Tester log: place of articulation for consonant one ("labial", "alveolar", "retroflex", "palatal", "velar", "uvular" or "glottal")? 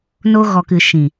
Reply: alveolar